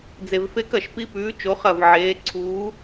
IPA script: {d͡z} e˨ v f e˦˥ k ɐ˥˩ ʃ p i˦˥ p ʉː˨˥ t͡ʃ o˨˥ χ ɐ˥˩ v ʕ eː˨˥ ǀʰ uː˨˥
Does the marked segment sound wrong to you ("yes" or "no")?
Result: no